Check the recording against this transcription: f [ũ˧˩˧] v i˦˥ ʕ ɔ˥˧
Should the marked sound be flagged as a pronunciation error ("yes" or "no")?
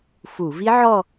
yes